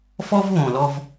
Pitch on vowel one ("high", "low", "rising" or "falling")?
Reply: high